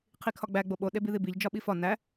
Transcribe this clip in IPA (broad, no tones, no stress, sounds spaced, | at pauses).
qʰ i kʰ ɒ ɡ͡b æ ɡ͡b o ɓ o ɗ e b i ð i b i ʎ d͡ʒ ɒ ɓ i f ɒ n æ